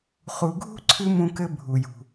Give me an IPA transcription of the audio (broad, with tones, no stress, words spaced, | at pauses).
χu˨ɡʱṳ˥ ǀʰɨ˥mũ˦kɘ˦ bʱu˩jṳ˩